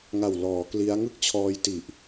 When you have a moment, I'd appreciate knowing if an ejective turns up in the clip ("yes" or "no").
no